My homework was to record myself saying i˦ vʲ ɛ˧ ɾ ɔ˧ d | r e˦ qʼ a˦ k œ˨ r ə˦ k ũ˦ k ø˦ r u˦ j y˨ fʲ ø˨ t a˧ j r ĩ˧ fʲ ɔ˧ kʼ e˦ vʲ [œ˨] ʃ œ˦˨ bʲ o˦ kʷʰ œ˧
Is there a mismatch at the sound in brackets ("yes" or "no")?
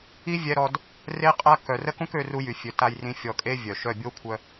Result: no